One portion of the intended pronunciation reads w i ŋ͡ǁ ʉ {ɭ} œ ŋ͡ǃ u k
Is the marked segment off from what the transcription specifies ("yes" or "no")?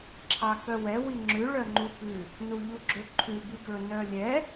no